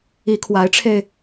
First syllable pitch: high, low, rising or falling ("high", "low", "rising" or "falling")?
rising